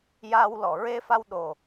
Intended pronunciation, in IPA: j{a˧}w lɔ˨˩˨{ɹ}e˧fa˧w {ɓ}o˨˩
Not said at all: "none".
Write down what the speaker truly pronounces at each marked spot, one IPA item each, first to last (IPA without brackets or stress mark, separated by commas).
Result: a˧, ɹ, ɗ